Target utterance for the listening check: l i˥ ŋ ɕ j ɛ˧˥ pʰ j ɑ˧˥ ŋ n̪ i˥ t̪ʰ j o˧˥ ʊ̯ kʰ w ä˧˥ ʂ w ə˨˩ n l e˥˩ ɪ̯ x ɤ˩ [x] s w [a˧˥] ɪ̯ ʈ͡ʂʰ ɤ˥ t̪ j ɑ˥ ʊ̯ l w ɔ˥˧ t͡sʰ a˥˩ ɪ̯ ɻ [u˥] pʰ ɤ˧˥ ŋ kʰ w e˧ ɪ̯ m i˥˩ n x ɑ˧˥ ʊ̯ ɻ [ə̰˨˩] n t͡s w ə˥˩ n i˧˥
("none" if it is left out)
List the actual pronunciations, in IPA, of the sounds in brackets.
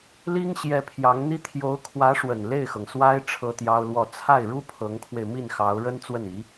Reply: ŋ, a˥, u˥, ə˥

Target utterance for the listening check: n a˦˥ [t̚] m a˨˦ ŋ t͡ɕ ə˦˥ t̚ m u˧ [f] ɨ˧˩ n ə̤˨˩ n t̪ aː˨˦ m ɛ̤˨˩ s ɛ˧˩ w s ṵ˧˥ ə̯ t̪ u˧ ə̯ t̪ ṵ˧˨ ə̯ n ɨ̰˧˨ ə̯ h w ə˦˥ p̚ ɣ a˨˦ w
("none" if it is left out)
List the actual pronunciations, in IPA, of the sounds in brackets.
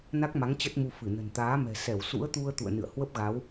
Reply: k̚, f

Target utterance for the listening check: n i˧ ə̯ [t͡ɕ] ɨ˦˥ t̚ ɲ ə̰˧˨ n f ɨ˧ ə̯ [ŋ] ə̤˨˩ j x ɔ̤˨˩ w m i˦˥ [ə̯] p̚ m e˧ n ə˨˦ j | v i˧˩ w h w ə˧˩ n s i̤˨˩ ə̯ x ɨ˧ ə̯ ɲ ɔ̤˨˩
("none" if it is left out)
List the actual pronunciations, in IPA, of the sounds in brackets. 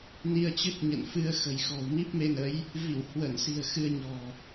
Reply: t͡ɕ, x, none

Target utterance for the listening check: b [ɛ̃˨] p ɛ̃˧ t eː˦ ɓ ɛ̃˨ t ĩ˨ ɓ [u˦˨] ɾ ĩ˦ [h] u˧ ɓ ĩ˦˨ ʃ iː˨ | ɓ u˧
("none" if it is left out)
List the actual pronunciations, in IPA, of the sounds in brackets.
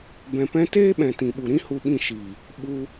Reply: ɛ̃˨, u˨, h

